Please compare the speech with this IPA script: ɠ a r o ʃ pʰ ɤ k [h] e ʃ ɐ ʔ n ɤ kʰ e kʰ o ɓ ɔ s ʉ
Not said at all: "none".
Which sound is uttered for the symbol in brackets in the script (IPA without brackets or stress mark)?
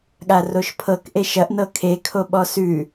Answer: ʔ